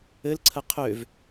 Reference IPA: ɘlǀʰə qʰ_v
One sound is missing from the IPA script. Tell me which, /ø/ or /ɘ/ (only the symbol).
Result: ø